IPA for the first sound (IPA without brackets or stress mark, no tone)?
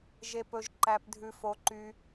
ʒ